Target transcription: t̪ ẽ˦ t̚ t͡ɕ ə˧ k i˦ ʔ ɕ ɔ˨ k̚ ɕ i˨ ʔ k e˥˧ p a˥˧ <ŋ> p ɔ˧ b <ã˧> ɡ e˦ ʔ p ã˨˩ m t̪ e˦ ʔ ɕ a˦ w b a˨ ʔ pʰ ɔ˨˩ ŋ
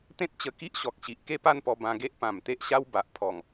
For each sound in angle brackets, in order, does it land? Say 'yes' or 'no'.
no, yes

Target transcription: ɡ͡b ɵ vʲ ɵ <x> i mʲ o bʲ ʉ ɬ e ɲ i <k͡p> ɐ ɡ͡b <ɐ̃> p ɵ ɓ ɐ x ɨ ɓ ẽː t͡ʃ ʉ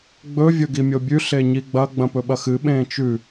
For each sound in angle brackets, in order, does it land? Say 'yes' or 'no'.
no, no, yes

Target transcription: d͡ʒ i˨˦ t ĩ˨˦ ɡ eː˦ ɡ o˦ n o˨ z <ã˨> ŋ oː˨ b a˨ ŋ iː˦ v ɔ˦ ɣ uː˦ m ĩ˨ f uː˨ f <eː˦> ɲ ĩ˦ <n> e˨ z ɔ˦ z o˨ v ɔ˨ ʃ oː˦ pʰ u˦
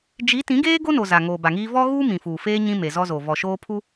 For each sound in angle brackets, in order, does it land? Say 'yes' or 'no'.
no, yes, no

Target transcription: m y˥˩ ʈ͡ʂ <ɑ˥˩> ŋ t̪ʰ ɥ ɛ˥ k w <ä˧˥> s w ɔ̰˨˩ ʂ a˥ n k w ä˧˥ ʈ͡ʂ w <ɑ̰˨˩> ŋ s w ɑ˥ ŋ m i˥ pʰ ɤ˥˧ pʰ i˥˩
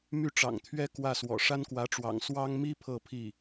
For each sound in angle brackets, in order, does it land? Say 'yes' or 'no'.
no, no, yes

